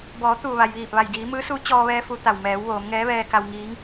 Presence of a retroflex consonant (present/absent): absent